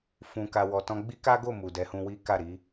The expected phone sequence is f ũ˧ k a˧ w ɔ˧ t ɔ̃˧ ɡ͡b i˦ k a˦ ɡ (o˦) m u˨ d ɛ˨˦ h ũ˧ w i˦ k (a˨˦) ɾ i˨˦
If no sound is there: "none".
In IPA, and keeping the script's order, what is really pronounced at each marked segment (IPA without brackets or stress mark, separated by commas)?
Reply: o˦˨, a˦˨